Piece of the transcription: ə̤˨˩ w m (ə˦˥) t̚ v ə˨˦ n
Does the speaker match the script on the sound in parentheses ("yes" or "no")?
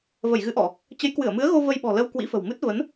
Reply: no